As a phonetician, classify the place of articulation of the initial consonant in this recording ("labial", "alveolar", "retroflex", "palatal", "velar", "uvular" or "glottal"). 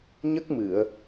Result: palatal